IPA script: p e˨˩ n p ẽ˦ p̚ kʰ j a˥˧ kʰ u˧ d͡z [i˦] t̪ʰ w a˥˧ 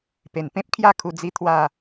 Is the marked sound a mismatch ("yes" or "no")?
no